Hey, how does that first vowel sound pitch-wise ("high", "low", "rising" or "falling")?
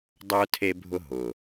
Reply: high